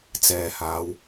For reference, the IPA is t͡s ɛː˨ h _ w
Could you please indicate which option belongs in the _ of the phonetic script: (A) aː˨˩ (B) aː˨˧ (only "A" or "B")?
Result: B